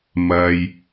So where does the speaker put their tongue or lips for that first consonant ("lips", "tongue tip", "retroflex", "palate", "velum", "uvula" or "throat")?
lips